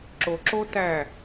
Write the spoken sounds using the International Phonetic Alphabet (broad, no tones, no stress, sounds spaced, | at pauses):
ǁ o ǁ o t æ